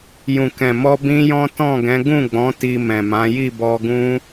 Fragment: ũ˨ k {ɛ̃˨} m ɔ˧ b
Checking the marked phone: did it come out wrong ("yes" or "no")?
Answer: no